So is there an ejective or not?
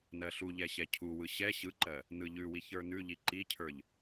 no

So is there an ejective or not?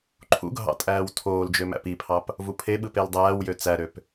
yes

